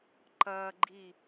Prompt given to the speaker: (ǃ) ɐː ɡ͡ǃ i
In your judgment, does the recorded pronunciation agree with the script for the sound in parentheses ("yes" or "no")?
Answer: yes